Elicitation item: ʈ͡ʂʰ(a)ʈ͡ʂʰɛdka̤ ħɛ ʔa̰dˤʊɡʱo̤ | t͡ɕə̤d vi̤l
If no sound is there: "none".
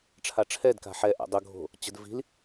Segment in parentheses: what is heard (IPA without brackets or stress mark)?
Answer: a